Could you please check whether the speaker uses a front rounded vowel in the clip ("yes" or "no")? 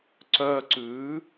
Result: yes